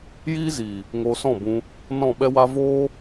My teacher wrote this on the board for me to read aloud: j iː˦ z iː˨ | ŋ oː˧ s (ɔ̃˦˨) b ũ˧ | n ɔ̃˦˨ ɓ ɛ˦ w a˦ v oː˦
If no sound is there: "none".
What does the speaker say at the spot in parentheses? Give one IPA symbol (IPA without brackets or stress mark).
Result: ɔ̃˦˨